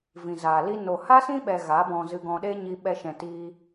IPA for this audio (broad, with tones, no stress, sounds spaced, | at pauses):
v ĩ˨ z aː˨ l i˧ n o˨ h a˦ s ĩ˦ ɓ ɛ˧ ɣ a˨˦ b ɔ̃˧ z ɨ˧ ɡ ɔ̃˧ ɗ e˦ ɲ i˧ ɓ ɛ˧ ʃ ɛ̃˨ t iː˧